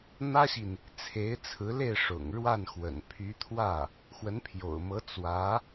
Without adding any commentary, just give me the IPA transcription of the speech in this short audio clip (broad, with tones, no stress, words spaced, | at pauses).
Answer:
n̪ä˥ɕi˨n | t͡sʰe˧˥ɪ̯t͡sʰɹ̩˧˥ le˥˩ɪ̯ʂʊ̰˨˩ŋ ɻwa˥˩n xwə̰˨˩npʰy˧˥ t̪ʰwä˥˩ | xwə˧˥npʰjo̰˨˩ʊ̯mɤ˧˥ t͡swä˧˥